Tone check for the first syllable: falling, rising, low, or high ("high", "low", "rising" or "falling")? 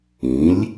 rising